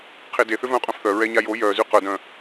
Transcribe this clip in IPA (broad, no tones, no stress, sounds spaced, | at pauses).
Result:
qʰ e d e θ ʏ v œ̃ qʼ œ̃ f θ œ ɹ ɛ ɲ a j o j œ z y q œ d œ̃